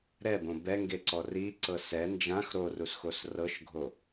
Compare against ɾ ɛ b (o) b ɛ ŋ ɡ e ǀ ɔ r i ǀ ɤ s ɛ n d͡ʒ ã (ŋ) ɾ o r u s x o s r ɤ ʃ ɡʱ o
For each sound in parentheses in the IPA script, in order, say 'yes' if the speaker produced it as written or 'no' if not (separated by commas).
no, no